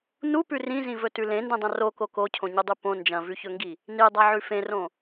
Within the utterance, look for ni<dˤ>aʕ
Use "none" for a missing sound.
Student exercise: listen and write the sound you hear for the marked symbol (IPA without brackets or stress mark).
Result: dˤ